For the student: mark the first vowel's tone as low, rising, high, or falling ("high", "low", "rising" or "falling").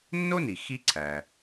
high